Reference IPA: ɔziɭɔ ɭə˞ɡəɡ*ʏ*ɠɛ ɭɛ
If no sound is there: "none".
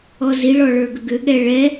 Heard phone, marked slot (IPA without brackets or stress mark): ʏ